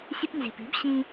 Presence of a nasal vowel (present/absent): present